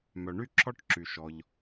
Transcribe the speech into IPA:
m œ˩ ɳ y˥ ǁʰ ɔ˥ ʈ ǁ y˩ ʃ ɔ˩ ʎ

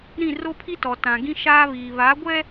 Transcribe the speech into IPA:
ɾ ĩ˦˨ r o˦ pʰ i˦ t ɔ˨ t ã˨ ɡ ĩ˦ ʃ aː˦ β iː˨ β a˨˦ ɡʷ ɛ˦

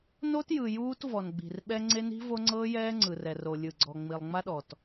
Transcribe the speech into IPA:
n o˦ t j ɯ˨ j uː˦ t v ɔ˨ n ɡ͡b i̤˨ r ɓ ɛ˦ ŋ͡ǀ e˦ n i̤˦ v o˦ ŋ͡ǀ ɤː˦ j ɛː˦ ŋ͡ǀ ɯ˨ r ɛ˨ r o˨ lʲ ɯ˨ ɡ͡ǀ ɔ˨ ŋ͡m i˨ lˠ ŋ͡m a˦ ɗ ɔ˨ t

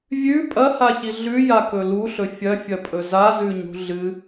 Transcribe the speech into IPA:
vʲ ʉ pʼ ɐ h a ç i ɮ ʉ j a k ɵ l u ɬ ɵ fʲ ɐ fʲ ɐ pʼ ɵ z a z ʉ ɲ ṳ ɮ ɨ

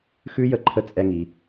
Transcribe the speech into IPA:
x ʉ˦˥ j ə˧ ǃʰ ə˧ t͡sʼ ɛ˧ ŋ i˩

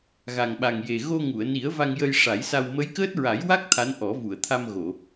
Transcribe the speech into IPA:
ɣ a˨˩ ŋ ɓ a˨˩ ŋ j e˨˩ ɣ o˧ ŋ u˨˩˨ ə̯ n i˨˩˦ ə̯ v a˧ ŋ j ə˧ j ʂ a˨˩˦ j s a˧ w m ə˧˥ j k əː˦˥ t̚ ɹ a˨˩˦ j w a˦˥ k̚ t̪ʰ a˧˥ n ʔ ɔ˨˩˦ v u˨˩˨ ə̯ t̪ʰ a˧ m ɣ o˨˩˨

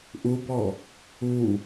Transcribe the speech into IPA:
ʔ u b ɔ | u

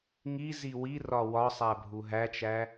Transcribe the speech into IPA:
ŋ i z i w i r ɒ w ɒ sˤ æ bʱ u ɦ æ t͡ʃ æ

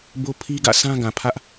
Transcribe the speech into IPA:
b o˦ pʰ i˦ ɡ ä̰˦˨ sʰ ã˦ ɡ ã˨ pʰ ä˦ ʔ

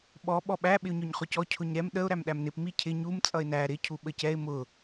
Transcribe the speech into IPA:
ɓ ɔ ɓ ɔ ɓ æ ɓ ɪ ʊ̯ ɲ ɔ ɲ χ ʊ c ɔ cʰ ʊ ɲ ɾ ɛ m ɗ ə ʊ̯ ɾ æ m ɗ æ m n ɪ p m i cʰ ɪ ɲ u m t͡sʼ ʌ ɪ̯ n æ ɾ ɪ cʰ u ɓ ə c ɛ ɪ̯ m ʊ

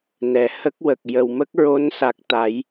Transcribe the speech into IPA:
n ɛ˨˩ h ə˦˥ k̚ w ə˨˩ k̚ j ə˨˩˨ w m ə˦˥ k̚ ɹ o˧˥ n s a˨˩ k̚ t̪ a˨˩˦ j

